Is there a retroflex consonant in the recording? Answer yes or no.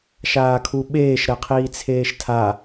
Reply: no